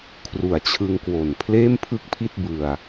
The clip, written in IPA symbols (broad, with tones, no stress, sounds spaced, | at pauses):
kʰ r u˨˩ a̯ t͡ɕʰ ɯ˧ ŋ k w o˨˩ n pʰ l eː˥˩ m pʰ ɯ˥˩ k̚ pʰ i˥˩ t̚ b ɯ˧ a̯